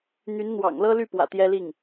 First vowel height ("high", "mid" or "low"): high